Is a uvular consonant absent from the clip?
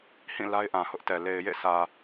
yes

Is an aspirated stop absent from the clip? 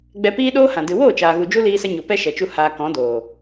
yes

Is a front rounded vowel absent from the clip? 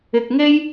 yes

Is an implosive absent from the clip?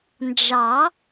yes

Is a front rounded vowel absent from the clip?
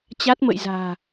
yes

